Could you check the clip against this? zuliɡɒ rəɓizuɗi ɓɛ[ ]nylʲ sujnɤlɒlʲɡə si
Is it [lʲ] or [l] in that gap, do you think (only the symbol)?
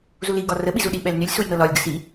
l